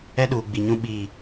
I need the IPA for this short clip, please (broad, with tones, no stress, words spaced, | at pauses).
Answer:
ɛ˦ɗuː˨ɡ͡bi˨ɲũ˦ ɓi˦˨